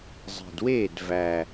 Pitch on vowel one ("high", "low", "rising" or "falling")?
low